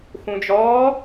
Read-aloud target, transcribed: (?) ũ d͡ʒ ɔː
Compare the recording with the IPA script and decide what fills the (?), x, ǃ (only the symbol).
x